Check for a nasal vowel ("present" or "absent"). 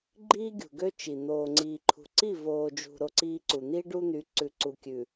absent